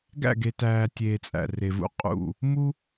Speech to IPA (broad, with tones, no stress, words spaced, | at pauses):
ɡæ̰˦˨ɡe˨tæː˨tʲeː˨ t͡sʼæ̰˨ re˨vṵ˦ qʼṵ˦˨ | mu˦